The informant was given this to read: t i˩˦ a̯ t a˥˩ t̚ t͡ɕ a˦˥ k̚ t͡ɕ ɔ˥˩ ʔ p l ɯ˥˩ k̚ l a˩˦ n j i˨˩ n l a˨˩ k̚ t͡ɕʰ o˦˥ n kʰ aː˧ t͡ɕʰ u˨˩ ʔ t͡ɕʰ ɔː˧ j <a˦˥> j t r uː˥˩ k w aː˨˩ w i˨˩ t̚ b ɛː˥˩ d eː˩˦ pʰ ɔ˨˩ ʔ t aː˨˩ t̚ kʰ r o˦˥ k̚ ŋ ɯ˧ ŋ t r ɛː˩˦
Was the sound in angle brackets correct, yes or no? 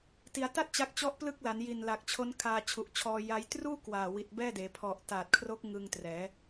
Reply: yes